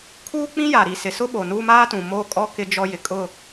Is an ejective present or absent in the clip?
present